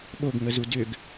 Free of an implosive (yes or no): no